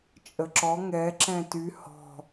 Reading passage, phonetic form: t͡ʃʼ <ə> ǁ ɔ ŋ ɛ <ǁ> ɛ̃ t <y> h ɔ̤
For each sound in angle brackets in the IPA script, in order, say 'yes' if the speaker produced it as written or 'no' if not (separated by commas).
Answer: yes, yes, yes